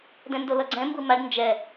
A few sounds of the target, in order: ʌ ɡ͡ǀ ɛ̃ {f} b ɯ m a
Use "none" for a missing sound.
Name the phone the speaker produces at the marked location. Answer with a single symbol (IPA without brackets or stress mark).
m